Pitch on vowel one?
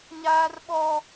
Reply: high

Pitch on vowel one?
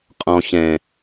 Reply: high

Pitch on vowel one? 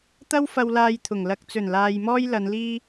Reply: high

